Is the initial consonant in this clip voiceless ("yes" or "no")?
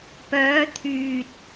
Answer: yes